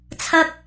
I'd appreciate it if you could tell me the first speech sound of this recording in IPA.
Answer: t͡sʰ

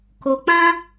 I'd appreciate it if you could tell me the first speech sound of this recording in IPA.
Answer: k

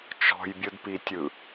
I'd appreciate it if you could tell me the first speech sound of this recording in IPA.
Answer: t͡ʃ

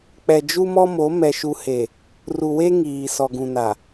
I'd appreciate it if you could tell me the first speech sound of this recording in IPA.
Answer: k͡p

